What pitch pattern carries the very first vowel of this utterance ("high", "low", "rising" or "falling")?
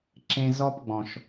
high